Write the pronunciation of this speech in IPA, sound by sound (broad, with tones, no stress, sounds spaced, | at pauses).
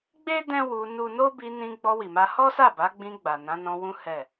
ɡ͡b e˦ d ɛ̃˦ w u˧ n u˦ n o˦ b i˧ n ĩ˧ ɡ͡b ɔ˧ w i˨ m a˧ h ɔ˦ s a˦˨ b a˨˦ ɡ͡b ĩ˧ ɡ͡b a˨ n ã˨˦ n ɔ̃˧ w ũ˦ h ɛ˦˨